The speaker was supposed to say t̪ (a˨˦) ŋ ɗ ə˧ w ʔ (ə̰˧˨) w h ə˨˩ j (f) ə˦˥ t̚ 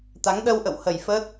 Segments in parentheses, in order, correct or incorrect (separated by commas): correct, correct, correct